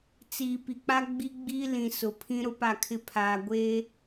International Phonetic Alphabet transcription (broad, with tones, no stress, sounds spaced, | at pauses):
t͡s iː˨ p i˨ k͡p a˦ ɡ͡b i˦ ɡ͡b iː˦ l ĩ˨ s ʊ˨ pʰ ĩ˦ ɾ ʊ˦ p a˦˨ kʰ ɪ˦ pʰ aː˨ ɡʷ eː˦